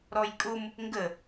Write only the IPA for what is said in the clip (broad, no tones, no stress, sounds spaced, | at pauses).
ɾ ɔ j kʼ ʊ m | ŋ ɡ ə